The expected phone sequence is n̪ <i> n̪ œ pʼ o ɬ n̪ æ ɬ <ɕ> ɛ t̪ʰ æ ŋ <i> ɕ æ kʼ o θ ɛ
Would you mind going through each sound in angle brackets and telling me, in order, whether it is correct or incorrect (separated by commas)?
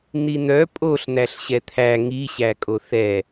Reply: correct, correct, correct